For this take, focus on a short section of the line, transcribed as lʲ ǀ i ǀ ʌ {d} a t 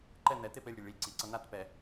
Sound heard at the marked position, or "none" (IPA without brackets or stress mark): n